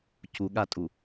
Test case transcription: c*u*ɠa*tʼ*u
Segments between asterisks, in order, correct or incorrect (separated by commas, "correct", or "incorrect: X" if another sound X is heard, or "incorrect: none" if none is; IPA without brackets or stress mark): correct, correct